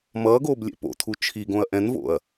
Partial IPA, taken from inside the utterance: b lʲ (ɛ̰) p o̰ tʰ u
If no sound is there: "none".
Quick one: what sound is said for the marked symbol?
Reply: ɛ̰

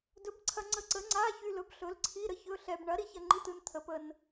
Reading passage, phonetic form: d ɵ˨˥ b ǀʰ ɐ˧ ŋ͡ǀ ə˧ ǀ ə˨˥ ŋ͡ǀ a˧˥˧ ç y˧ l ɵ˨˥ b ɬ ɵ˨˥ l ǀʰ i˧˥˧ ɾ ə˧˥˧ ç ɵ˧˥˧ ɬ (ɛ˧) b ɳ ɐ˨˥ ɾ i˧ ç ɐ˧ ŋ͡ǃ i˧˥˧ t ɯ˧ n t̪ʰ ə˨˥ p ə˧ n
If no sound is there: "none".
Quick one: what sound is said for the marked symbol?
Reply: ɛ˧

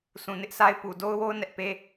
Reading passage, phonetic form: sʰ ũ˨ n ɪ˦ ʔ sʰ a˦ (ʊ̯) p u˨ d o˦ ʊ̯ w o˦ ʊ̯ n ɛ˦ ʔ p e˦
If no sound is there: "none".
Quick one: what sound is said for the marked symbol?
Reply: ɪ̯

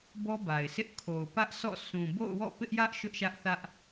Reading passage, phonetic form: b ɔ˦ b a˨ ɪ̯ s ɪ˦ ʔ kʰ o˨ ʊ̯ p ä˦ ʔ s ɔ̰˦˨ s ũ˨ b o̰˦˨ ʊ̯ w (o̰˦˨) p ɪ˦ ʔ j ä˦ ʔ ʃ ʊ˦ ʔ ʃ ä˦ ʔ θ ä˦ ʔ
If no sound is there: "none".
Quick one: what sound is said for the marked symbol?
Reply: ɔ̰˦˨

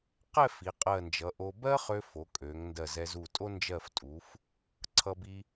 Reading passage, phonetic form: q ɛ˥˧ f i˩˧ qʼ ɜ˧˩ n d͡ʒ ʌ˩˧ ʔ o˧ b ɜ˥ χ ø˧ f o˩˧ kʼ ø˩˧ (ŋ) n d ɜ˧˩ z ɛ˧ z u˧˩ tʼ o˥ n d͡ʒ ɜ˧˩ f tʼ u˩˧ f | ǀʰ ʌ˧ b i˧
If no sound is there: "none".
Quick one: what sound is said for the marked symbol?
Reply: ŋ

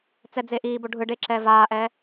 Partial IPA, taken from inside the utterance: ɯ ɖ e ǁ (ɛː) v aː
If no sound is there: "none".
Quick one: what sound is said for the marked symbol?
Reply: ɛː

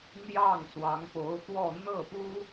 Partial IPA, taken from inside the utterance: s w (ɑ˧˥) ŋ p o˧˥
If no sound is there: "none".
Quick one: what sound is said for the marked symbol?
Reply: ɑ˧˥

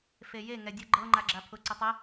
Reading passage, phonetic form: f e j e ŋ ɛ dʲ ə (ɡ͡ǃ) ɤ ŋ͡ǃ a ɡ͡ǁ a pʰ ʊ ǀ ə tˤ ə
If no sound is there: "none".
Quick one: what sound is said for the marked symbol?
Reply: ɡ͡ǃ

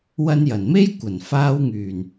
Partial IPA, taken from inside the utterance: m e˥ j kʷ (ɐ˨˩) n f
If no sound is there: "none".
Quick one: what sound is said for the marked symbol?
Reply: ɐ˨˩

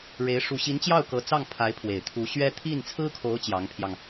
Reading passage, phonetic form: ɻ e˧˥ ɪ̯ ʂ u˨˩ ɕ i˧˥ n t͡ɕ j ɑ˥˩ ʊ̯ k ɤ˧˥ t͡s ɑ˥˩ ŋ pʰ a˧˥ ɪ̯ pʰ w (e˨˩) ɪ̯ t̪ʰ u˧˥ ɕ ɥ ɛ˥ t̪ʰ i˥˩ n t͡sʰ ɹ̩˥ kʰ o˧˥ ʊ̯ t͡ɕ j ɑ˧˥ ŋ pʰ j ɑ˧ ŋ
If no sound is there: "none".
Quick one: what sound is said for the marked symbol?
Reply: e˨˩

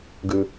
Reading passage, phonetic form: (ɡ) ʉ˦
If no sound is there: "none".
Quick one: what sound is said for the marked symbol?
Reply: ɡ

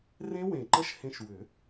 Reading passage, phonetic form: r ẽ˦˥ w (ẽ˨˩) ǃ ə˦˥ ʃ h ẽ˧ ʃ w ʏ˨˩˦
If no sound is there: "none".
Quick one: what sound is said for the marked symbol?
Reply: ẽ˨˩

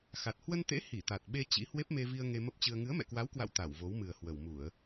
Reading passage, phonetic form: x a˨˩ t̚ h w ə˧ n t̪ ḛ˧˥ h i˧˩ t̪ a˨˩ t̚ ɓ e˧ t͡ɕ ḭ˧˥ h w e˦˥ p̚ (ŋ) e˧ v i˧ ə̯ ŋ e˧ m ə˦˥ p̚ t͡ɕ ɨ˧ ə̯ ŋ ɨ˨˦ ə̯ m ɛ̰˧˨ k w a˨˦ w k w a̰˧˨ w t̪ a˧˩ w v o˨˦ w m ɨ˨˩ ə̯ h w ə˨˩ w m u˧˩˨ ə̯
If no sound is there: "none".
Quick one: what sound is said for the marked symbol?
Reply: m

